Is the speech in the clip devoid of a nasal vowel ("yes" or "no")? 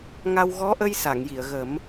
yes